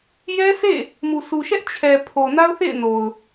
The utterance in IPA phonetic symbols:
j ɛ˦ s ḛ˦˨ | m u˨ s u˨ ʃ ɛ˦ ʔ t͡ɕʰ ɛ˨ pʰ o˨ n a˦ ʊ̯ θ ḛ˦˨ ɪ̯ n o˨ ʊ̯

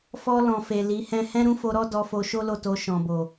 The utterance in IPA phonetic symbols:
f ɔ˧ l ɔ̃˨ f e˨ l i˨˦ h ɛ̃˦ h ɛ̃˦ ɾ ũ˦ f o˧ ɾ ɔ˦ d ɔ˧ f o˧ ʃ o˦ l o˦˨ t o˧ ʃ ɔ̃˨ b o˨

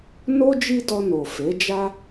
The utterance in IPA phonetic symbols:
n o˦ d͡ʒ i˦ d ɔ˧ n o˨ f e˨˦ d͡ʒ a˦

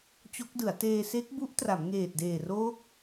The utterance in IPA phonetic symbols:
t͡ɕ o˦˥ k̚ d ɯ˩˦ a̯ t eː˧ s e˦˥ k̚ b u˦˥ ʔ t r a˩˦ m ŋ eː˨˩ t̚ d eː˨˩ r oː˦˥ k̚

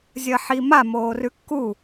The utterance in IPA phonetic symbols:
zʲ ɐ ħ i m a m oː r ʉ kː u

